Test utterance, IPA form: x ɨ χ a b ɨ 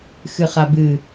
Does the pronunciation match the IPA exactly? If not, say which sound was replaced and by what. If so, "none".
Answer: none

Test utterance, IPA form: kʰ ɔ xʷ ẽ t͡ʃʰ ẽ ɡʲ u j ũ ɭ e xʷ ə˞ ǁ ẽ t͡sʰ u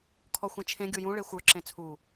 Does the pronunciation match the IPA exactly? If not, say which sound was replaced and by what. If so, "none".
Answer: none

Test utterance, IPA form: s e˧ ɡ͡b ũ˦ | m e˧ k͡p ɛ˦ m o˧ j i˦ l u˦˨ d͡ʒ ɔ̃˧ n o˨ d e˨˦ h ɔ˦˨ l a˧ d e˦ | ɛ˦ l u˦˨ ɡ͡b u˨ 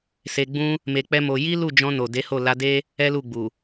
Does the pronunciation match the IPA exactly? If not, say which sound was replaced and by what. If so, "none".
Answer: ɔ˦˨ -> o˦˨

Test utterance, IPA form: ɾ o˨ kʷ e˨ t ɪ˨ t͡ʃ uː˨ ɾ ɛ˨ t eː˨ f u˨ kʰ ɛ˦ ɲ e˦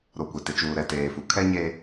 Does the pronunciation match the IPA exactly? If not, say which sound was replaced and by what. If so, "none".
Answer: none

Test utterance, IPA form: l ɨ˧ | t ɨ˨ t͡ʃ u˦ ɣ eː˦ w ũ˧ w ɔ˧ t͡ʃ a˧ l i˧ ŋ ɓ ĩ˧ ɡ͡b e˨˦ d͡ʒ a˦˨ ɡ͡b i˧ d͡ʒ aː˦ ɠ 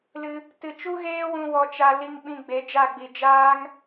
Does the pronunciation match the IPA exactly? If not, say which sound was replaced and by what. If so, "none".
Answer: ɠ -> ŋ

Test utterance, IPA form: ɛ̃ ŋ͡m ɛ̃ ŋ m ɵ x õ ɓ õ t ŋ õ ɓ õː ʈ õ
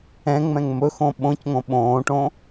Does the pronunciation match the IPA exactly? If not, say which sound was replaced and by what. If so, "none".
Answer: t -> c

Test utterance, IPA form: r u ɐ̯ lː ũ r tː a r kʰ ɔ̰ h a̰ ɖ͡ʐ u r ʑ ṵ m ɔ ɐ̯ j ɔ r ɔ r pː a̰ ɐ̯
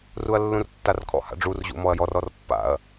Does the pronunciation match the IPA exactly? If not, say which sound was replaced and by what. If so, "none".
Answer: none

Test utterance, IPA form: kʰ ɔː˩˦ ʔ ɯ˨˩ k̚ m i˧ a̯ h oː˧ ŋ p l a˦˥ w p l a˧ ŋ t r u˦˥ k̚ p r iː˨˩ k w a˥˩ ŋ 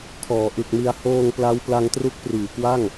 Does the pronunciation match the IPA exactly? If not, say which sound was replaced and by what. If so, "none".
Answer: none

